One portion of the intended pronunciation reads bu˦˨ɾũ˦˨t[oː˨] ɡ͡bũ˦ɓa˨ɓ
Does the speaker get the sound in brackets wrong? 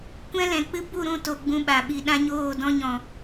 yes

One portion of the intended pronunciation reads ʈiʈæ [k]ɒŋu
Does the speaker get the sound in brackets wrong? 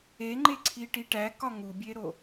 no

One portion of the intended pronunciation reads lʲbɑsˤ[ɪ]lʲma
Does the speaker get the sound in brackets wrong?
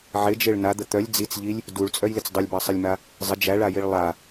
no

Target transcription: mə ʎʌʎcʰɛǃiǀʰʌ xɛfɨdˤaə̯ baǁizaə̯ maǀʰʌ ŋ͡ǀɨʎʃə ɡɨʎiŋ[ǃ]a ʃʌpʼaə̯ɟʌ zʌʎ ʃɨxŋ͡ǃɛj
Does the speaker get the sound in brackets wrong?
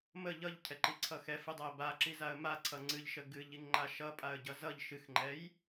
yes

